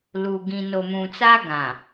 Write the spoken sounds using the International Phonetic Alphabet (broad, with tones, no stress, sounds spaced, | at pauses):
l u˨ ɡ ĩ˨ n o˨ m ũ˨ t͡s a˦ ɡ ã˨